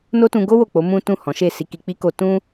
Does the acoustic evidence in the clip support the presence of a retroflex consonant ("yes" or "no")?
no